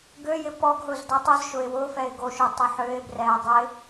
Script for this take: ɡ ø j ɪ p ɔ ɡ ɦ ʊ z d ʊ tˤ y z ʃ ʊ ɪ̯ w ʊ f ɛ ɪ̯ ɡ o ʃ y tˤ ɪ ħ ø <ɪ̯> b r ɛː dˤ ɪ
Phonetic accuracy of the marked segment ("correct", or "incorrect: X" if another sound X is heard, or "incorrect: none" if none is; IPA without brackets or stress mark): correct